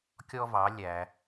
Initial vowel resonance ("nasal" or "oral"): oral